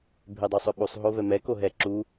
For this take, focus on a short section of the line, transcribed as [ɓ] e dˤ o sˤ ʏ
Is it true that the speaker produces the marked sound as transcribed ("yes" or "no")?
no